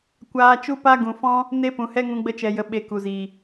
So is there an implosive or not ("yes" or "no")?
yes